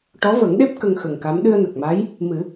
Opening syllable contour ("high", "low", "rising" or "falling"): rising